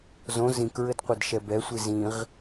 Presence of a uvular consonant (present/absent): present